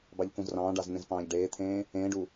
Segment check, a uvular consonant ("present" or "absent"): absent